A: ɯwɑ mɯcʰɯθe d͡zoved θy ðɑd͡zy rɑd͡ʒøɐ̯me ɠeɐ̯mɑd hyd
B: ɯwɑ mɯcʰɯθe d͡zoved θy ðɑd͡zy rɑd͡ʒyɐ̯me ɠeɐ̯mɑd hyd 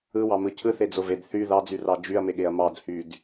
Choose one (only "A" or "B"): B